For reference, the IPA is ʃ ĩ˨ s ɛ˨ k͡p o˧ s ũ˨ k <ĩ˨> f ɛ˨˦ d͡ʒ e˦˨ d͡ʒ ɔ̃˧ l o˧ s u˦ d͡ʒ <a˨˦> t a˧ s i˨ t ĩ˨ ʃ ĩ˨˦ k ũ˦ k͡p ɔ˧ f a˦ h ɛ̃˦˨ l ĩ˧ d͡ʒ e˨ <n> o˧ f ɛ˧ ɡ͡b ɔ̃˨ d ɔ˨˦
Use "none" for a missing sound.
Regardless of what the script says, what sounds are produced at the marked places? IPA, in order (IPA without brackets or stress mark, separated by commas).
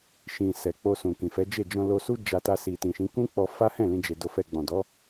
ĩ˨, a˧, d